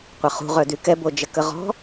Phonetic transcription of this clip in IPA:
qʷ ɐ χ ṳ ʁ œ d y k ɛ b o d͡ʒ ə k ə ʁ ɔ̤

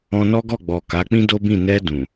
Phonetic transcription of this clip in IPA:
ɔ̃˧ n ɔ˦ ɡ ɔ˦˨ ɡ͡b ɔ˨ k a˨˦ k͡p ĩ˦ d o˦ b ĩ˦˨ n ɛ˧ d ũ˨

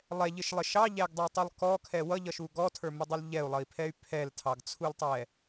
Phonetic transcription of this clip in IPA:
lˠ ɛ ʎ ɪ ʃ lˠ ɪ ʃ ɑ ʎ æ ɡ dˤ ɛ tˤ u lˠ k ɔ kʰ ɛ w ʌ ʎ ʌ ʃ u ɡ ɔ tʰ ə˞ m ɪ dˤ ʌ l ʎ ɛ u̯ lˠ ʌ i̯ pʰ ɛ y̯ pʰ ɛ l tʰ ɑ ɡ t͡sʰ u l tˤ ɛ

